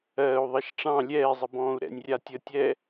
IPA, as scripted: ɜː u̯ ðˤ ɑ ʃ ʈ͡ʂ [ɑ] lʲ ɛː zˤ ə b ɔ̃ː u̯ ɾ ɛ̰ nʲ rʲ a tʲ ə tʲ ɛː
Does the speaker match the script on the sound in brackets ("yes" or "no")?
no